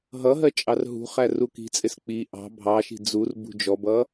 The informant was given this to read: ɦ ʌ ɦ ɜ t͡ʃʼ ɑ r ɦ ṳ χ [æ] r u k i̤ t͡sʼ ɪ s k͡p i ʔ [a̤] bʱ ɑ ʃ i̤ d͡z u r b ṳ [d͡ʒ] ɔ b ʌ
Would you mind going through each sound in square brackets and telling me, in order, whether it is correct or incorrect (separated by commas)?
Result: correct, incorrect, correct